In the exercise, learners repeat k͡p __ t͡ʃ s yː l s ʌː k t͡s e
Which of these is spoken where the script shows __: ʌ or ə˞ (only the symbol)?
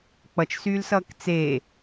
ʌ